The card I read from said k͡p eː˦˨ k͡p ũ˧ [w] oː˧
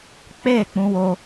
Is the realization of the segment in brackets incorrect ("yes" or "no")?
no